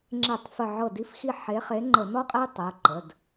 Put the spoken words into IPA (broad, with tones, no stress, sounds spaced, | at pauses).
ŋ͡ǁ e˧˩˧ tˤ f ə˧˩ ʕ ɤ˧˩ d i˨˦ f x i˧˩ ħ e˨˦ χ e˨˦ ŋ͡ǃ ə˧˩˧ n ɔ˦ qʼ e˦ tˤ ə˩˧˩ ǃ ə˩˧˩ d